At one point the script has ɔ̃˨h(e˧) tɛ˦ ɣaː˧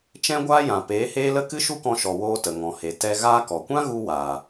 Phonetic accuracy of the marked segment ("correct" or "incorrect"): incorrect